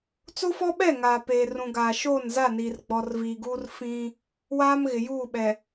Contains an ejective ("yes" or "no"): no